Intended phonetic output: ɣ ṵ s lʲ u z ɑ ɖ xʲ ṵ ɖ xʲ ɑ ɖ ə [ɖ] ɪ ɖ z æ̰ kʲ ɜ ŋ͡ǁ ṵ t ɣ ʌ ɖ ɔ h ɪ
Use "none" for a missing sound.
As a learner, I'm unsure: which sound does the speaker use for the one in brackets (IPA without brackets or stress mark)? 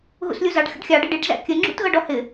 ɖ